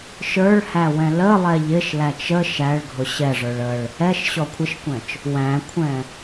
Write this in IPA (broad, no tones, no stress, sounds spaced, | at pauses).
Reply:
ʃ ə˞ ɭ h æ w ɛ̃ l ə lˠ ɛ ʎ ɪ ʃ l æ t͡ʃ ə ʃ æ ɭ ɡʱ ʊ ɕ ɛ ʐ ə˞ ɭ ə ɭ | ɛ ʃ ɕ ɔ kʷʰ ɪ ʃ kʷ ɛ̃ t͡ʃ | w æ̃ kʷʰ ɛ̃